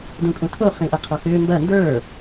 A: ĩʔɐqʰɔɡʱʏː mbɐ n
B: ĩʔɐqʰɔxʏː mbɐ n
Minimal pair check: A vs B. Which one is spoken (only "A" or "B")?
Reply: B